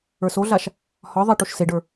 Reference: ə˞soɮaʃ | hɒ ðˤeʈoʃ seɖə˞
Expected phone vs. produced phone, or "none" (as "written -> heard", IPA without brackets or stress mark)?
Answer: none